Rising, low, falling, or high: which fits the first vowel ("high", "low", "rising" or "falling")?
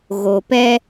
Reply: low